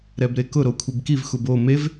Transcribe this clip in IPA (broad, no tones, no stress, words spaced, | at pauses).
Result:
ɾɛbɾekʊ ɾokʷʰibkiv xubo mev